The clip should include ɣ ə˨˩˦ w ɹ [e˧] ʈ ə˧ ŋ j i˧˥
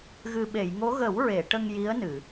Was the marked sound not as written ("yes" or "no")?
yes